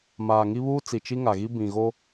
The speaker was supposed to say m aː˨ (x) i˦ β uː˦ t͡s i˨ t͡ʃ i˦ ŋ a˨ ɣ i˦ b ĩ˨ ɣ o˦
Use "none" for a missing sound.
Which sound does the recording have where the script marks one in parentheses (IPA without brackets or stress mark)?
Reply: ŋ